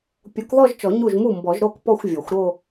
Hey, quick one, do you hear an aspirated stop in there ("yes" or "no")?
no